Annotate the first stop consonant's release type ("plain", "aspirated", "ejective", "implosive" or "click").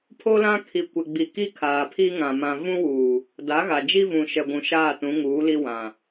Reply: aspirated